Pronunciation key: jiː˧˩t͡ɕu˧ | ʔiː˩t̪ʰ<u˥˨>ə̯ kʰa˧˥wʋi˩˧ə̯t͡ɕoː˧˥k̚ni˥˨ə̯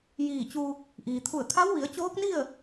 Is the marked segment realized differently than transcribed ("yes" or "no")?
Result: yes